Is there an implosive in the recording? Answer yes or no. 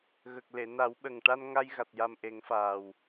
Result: yes